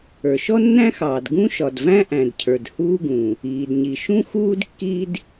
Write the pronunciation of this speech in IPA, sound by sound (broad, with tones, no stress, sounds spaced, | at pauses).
ə˞˩ ʃ ɔ˥ nː æ̃˥ x ɑː˩ d ɡ ũ˥ ʃ ɒ˩ d v æ̃˥ ʔ æ̃˩ d cʰ ə˞˩ d h uː˥ ɡ ũ˩ | iː˩ d ɲ i˩ ʃ ũ˥ x uː˥ d kː i˥ d